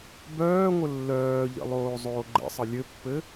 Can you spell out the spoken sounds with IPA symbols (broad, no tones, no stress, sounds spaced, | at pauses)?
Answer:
b œː ŋʷ ə lː œː ʎ ə̰ lˠ oː zˤ oː ɡ͡ǃ ə̰ sˤ ə lʲ ɘ pː ɘ